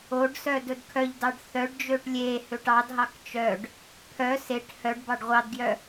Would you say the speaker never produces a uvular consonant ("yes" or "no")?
no